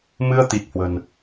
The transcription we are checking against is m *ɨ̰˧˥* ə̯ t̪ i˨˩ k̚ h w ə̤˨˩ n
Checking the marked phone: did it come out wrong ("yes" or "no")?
yes